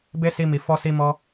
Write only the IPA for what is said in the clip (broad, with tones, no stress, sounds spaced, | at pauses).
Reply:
b e˦ s i˧ m i˨ f ɔ˧ s i˧ m ɔ˦